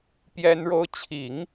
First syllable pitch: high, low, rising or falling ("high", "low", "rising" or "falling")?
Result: high